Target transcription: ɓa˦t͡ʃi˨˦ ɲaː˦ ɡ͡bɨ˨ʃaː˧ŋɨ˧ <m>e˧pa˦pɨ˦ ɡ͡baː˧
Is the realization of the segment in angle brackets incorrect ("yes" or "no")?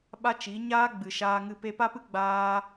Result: yes